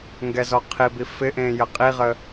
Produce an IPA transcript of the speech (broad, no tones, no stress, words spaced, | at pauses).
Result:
ŋɡɛzɔqʰibi fɪʔẽ jəqʼiʁə